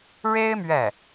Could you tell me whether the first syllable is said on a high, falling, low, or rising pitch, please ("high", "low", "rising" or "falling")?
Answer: high